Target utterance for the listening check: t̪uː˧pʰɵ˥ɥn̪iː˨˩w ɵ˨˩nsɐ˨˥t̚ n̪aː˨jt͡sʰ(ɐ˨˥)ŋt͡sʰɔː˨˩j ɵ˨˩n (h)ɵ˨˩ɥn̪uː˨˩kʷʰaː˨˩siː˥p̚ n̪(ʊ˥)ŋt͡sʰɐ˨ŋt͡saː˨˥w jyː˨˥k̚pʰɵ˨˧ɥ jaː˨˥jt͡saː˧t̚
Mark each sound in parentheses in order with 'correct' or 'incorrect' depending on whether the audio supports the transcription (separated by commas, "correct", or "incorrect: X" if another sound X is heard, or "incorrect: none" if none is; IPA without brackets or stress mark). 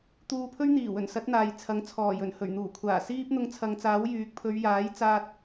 correct, correct, incorrect: ʊ˧